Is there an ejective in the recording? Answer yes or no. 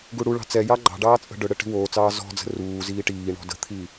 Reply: yes